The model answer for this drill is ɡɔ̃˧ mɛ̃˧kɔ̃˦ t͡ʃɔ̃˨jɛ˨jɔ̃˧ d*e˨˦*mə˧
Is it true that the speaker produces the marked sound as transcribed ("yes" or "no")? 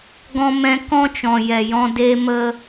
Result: no